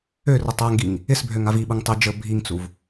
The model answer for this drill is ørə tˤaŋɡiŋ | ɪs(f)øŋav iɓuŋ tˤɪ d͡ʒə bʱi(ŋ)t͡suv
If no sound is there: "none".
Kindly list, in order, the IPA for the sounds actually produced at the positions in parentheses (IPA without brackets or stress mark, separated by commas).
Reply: bʱ, ŋ